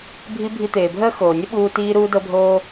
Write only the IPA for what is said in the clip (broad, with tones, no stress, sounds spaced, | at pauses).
bʱ i˦ bʱ i˧ t̪ eː˨ bʱ əː˦ x oː˨ nʲ ə˦ ɓ uː˧ t iː˧ ɾ uː˧ d ɤ˧ bʱ oː˧